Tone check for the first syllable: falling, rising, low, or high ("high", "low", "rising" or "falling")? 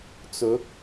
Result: rising